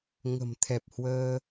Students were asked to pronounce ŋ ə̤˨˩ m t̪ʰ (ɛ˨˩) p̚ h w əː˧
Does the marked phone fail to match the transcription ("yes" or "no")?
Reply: no